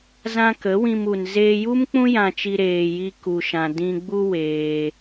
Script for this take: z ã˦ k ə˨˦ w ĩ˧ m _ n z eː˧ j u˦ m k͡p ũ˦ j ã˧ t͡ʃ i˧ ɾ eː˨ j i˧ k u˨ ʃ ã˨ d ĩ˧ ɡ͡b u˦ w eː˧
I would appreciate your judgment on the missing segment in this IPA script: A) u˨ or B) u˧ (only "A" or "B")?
A